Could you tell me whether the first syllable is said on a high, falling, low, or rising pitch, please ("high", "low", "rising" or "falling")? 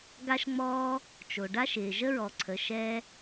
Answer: high